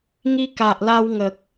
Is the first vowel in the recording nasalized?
no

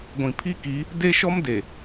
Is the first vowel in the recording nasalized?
yes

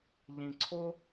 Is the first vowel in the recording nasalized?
yes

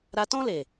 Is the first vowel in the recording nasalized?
no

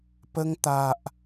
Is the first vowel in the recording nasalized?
no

